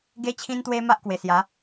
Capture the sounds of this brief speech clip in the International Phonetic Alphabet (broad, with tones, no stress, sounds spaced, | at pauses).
ɡ e˧ t͡ɕʰ ĩ˧ n t̪ w e˧ m a˦ ʔ k w e˨˩ s j a˨˦